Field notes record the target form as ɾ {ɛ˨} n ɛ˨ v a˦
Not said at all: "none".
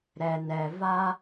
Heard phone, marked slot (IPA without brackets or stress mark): ɛ˨